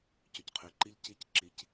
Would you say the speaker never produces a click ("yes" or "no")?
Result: no